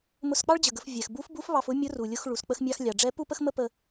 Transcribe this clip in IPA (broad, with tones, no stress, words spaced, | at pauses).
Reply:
mʊ˧sk͡pɑ˥ɭd͡ʑə˩ɡə˩˧f vʲɛ˩xbu˧˥fbu˧˥f βɑ˧fʊ˥ mʲʊ˧˥ru˩lʲʊ˧x ɭu˩sk͡pə˧xmʲɑ˧x lʲɑ˩ɖ͡ʐɛ˧˥ pu˥pə˥x mə˥pə˧